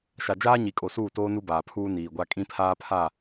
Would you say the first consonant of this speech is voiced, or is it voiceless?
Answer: voiceless